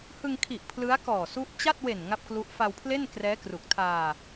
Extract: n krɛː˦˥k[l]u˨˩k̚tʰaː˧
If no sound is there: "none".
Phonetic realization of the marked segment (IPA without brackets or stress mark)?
r